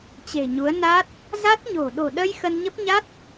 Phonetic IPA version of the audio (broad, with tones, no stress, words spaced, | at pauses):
t͡ɕe̤˨˩ɲu˨˦ə̯ na˦˥t̚ | za˦˥t̚ɲo̤˨˩ ɗo̤˨˩ɗə˧j xə˧nɲə˦˥p̚ ɲa˦˥t̚